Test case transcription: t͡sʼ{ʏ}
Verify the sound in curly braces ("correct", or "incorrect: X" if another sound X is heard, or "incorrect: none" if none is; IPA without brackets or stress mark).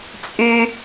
incorrect: y